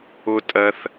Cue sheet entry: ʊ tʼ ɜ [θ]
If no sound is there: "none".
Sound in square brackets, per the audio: θ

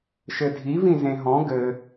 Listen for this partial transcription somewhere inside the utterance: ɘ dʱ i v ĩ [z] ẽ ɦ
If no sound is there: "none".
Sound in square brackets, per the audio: z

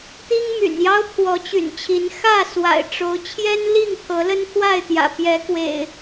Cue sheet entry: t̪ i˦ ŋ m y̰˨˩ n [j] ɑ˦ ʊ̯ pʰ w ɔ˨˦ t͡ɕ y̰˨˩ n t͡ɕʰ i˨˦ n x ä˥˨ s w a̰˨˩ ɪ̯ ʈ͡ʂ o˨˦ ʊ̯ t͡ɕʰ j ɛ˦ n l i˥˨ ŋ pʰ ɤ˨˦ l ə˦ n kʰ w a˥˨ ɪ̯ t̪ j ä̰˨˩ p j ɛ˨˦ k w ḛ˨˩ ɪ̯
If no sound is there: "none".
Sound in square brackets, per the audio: j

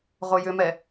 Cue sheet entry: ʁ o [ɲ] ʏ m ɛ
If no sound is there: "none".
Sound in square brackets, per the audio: j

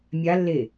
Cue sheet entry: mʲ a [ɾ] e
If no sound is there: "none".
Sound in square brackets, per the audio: lː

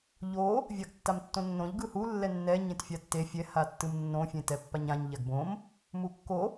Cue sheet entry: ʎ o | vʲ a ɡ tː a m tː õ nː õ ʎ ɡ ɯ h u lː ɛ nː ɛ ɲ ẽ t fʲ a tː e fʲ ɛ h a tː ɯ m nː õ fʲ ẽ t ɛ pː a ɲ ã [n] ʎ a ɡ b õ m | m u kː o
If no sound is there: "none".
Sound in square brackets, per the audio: ɲ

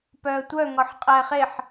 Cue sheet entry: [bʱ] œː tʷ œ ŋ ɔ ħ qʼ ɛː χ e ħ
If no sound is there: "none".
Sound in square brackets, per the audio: p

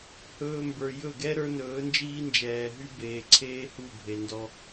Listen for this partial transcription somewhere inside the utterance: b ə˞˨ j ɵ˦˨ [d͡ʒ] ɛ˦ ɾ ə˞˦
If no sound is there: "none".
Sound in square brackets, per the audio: ɡ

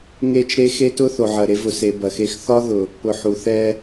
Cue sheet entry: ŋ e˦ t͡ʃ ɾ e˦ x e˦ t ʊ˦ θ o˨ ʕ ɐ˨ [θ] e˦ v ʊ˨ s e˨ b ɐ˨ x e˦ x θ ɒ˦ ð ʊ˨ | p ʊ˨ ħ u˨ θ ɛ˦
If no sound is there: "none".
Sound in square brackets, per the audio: ɾ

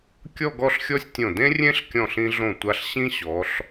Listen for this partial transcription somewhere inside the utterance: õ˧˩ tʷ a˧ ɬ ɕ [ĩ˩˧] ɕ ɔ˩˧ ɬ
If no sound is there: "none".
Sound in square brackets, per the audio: ĩ˥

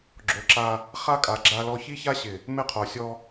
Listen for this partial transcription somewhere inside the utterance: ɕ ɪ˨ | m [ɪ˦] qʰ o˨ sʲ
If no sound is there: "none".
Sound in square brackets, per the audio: ɪ˦˨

